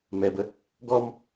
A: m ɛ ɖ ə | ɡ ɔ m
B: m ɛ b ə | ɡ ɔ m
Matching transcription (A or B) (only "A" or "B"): B